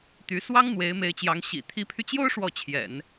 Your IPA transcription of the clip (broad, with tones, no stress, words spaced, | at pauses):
t̪y˧˥ swɑ˥ŋ n̪we˧˥ɪ̯me˧˥ɪ̯t͡ɕjɑ˧˥ŋ ɕḭ˨˩ t̪ʰi˧˥pʰy˧t͡ɕjo˥ʊ̯ ʂwɔ˥˩t͡ɕʰjɛ̰˨˩˦n